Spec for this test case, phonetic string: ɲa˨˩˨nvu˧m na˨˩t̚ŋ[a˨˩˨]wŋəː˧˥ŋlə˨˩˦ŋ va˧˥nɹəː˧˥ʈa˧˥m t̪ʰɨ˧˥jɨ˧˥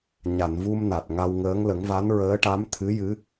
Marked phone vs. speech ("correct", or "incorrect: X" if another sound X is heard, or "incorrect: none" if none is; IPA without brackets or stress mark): incorrect: a˧